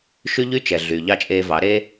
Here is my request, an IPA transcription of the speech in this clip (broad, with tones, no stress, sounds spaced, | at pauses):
ʃ y˦ ʎ y˦ t͡ʃ ɛ˨ ɮ y˨ ʎ ɑ˦˨ t͡ʃʼ eː˧ v ɑ˨˦ ɾ eː˦